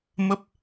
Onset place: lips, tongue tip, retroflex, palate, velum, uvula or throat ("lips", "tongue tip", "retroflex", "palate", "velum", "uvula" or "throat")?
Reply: lips